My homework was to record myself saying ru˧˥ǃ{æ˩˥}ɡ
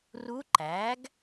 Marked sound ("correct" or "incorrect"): correct